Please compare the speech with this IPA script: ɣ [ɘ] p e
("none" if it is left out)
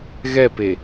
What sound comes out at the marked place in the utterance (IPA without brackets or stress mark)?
ɛ